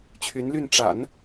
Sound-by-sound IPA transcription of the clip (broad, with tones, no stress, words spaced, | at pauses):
t͡ɕʰy˧˥nly˥˩n ʈ͡ʂa̰˨˩˦n